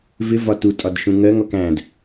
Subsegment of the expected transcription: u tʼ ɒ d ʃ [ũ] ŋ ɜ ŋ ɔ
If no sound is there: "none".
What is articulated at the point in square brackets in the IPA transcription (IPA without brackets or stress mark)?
ũ